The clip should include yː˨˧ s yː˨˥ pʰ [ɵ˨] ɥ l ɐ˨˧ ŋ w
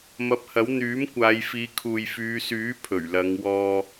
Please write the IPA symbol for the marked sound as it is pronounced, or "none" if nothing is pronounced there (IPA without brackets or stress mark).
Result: ɵ˨˩